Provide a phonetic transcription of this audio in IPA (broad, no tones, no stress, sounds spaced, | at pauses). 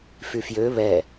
f y f j ø β ɛ